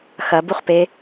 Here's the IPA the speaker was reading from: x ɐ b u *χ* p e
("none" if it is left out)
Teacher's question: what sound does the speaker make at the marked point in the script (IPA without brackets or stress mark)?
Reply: χ